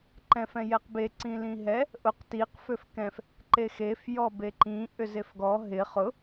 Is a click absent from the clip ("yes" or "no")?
no